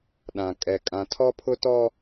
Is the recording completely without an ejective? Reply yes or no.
no